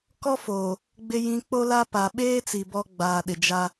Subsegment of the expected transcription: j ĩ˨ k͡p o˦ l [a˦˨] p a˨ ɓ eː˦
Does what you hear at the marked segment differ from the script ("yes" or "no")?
yes